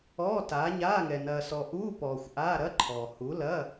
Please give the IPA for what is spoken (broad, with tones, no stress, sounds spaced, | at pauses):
ɔː˧˥˧ t aː˨˥ ɲ aː˧˥˧ ŋ ɛ˨ n ɐː˨ s ɔ˨ ʔ uː˧˥˧ p ɔː˨ xʷ ʔ aː˧˥˧ ɾ ɐ˧˥˧ ǃʰ ɔː˨ h u˨˥ l ɐː˧˥˧